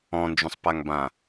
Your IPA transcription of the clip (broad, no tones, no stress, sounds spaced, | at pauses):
ɔ̃ n d͡ʒ ũ sˤ p a ŋ b ã